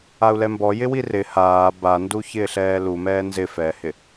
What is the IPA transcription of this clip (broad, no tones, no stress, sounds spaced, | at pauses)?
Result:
a u̯ l ɛ m b ɔ j ɪ w i r ɪ h aː b a n d u ç ɪː ɬ ɛː l u m ɛː n z ɪ f ɛː h ɪ